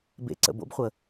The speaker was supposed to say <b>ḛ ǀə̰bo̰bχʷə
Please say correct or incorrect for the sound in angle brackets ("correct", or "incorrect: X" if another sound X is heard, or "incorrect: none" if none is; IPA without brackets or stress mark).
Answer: correct